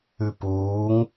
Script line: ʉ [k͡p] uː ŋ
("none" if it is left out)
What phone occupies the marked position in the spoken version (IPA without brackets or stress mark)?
p